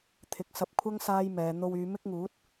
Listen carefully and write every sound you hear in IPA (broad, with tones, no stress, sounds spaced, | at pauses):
t̪ʰ ɪ˨˥ k̚ s ɐ˧ p̚ kʷʰ ɐ˥ ŋ s aː˥ j m ɛː˨˧ n̪ o˧ w yː˨˧ m ɪ˥ k̚ ŋ uː˨˥ t̚